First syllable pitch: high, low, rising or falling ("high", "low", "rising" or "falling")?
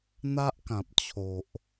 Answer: high